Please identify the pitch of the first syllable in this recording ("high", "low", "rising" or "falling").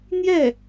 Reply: falling